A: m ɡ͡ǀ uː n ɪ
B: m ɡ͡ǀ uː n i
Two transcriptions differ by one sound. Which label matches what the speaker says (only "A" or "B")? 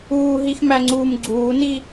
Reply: B